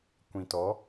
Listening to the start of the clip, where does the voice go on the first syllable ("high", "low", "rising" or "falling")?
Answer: low